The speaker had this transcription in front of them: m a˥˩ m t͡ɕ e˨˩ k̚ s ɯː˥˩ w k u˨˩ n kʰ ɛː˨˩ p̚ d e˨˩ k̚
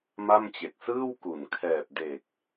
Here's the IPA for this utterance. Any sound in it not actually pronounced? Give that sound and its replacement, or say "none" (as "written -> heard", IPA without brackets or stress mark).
none